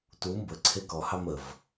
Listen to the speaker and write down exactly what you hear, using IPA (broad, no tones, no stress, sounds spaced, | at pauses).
t u m b ə ǀʰ e k ɔ h ɑ m ə v